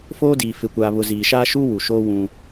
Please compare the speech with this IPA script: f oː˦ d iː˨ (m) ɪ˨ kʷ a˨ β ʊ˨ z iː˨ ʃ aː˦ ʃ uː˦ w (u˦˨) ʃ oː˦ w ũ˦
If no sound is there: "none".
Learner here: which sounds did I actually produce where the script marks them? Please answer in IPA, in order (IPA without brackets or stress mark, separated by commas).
f, u˨